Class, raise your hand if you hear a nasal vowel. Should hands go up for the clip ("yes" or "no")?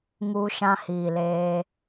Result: yes